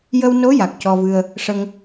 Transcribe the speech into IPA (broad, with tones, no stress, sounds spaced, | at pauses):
j ə˧ w n o˧˥ j a˨˩ k̚ c ɔ˧ v ɨ˧ ə̯ | ʂ ə˧ ŋ